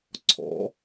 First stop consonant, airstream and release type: click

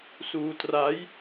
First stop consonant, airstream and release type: plain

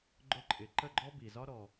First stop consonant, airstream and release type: click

